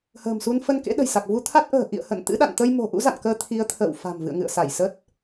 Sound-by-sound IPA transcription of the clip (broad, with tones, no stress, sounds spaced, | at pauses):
h ə̤ː˨˩ m s u˧ n f ə˧ n k ḛ˧˥ ɗ ə̤˨˩ j s a˨˩ k̚ v u˧ t̪ʰ a˦˥ t̚ ʔ ə̤ː˨˩ ʔ ḭ˧˨ ə̯ h ə̰˧˨ n t̪ ɨ̰˧˥ ɗ a̰˧˨ n t̪ ə˧ j m o̤˨˩ ʔ ṵ˧˥ z a̰˧˨ n k əː˧ t̪ʰ i˨˦ ə̯ t̪ʰ ə̰ː˧˨ w f a̤˨˩ m v ɨ̰˧˨ ə̯ ŋ ɨ̰˧˨ ə̯ s a˧˩ j s ə˦˥ t̚